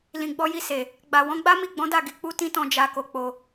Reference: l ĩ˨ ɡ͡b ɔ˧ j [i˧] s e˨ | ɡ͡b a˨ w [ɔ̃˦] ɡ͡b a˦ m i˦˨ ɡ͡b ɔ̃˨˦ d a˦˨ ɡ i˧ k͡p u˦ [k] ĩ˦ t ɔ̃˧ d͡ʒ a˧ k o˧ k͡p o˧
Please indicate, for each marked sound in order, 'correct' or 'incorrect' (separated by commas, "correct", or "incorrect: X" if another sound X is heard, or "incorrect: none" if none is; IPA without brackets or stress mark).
correct, incorrect: ɔ̃˨˦, incorrect: t